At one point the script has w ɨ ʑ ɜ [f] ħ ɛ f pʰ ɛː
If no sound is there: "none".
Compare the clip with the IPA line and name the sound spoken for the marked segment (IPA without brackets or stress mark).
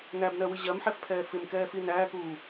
m